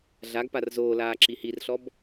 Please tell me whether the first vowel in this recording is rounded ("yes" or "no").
no